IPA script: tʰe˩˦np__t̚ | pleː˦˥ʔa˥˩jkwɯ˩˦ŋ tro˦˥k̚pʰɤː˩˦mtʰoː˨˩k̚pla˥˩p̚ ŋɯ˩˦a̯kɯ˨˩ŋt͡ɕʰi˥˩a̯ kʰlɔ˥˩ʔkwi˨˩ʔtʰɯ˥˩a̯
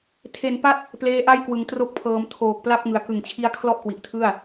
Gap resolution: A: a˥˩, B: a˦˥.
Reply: B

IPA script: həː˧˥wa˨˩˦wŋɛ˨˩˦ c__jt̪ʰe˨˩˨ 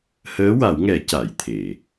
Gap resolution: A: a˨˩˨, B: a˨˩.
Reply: A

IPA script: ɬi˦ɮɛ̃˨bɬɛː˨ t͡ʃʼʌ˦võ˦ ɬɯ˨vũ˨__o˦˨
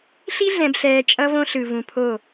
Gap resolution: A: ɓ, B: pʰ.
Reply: B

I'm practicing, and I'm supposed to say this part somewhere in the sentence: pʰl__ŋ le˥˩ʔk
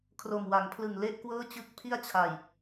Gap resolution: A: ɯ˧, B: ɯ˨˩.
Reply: B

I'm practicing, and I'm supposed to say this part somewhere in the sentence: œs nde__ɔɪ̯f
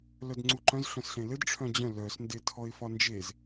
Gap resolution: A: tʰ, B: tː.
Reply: A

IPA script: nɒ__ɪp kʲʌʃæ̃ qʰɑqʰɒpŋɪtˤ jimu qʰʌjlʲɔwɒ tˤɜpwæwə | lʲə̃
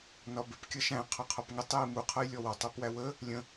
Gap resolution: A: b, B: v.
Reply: A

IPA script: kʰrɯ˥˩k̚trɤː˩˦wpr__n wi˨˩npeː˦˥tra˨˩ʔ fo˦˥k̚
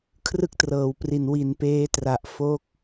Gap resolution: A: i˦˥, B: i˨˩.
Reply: B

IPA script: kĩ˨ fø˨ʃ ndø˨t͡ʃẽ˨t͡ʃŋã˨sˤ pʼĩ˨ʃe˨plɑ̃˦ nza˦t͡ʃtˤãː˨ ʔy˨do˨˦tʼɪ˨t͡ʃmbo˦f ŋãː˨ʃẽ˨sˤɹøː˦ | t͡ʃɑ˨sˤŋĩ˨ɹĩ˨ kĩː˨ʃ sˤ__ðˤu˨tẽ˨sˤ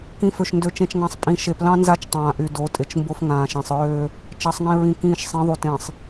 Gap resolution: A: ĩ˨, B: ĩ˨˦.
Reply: B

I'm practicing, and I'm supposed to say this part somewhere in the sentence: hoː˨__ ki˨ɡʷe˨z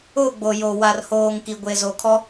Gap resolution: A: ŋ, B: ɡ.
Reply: A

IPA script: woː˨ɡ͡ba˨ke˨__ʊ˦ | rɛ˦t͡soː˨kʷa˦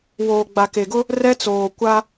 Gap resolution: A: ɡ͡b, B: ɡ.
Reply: B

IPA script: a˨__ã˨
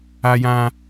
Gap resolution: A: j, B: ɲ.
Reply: A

